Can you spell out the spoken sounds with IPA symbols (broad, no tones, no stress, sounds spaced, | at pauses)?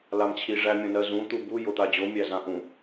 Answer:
l a m t͡ɕʰ i ʐ æ mʲ õ n ɜ z ũ t̪ u b u j o t̪ a d͡ʑ o mʲ æ z ã ʔ ũ